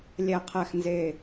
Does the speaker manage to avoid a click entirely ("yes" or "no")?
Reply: yes